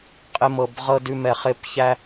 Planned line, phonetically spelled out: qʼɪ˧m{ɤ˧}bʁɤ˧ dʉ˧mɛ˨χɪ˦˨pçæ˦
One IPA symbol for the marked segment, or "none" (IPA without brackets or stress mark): ɤ˨